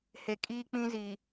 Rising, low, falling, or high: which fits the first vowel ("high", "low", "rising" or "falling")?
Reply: low